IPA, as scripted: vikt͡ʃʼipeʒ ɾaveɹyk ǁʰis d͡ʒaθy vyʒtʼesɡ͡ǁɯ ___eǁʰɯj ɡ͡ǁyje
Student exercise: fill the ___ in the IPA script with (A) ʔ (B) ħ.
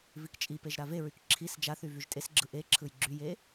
A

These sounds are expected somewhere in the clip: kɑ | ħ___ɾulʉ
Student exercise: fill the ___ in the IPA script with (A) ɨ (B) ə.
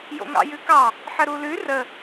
B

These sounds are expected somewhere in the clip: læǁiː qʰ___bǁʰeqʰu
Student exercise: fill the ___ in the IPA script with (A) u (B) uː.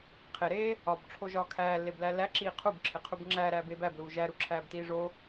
A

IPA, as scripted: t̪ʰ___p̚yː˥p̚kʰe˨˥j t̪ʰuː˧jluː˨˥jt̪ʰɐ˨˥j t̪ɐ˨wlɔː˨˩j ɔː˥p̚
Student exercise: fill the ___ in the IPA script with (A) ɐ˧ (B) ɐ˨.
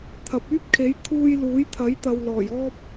B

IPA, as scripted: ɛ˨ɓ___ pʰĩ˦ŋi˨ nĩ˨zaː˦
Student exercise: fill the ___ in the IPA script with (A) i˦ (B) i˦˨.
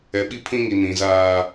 A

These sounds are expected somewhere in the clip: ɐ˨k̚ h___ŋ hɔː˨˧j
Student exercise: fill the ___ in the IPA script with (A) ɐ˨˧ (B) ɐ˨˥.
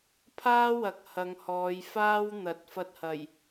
A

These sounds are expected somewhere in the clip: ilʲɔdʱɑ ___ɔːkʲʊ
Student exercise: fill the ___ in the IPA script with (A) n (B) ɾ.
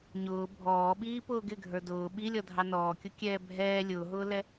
A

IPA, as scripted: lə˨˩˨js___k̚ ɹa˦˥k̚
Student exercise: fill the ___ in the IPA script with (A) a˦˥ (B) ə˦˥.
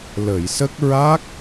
B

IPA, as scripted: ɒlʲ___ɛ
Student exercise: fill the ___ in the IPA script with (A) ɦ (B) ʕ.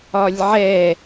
B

